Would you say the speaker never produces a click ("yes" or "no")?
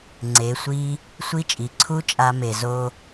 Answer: no